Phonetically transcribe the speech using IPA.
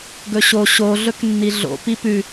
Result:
ɡɵɕo ɕo ɮɵknːiɮo̰ pipʉ

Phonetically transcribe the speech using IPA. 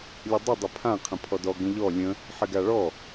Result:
lʲədˤə dˤɪpʰã qʰə̃pʰɔdɔ ɡə̃ʎɔ lʲə̃ | ħɪɡaɭɔ

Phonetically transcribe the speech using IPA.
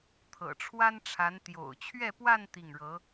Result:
t̪ʰɤ̰˨˩ʈ͡ʂʰwa˥nʈ͡ʂʰa˧˥n t̪jo̰˨˩ʊ̯t͡ɕʰɥɛ˥˧pwa˥˧n t̪i˥˩ŋɻɤ˧˥

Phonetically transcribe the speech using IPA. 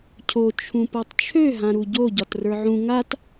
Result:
cʰo t͡ʃʰũpɤtˤt͡ʃʰø ɦãɾuɟo ɟɒtrə˞ʕũ ŋat

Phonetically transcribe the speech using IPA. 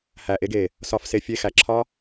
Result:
hæ˨ʔe˧ɡe˨ | sɒ˧f se˨fʲe˧ xæ˨ǁʰɒ˦

